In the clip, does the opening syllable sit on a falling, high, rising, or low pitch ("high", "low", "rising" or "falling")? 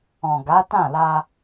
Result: low